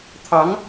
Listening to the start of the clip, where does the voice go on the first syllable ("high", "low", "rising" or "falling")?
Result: rising